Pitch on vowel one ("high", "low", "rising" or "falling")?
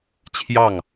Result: falling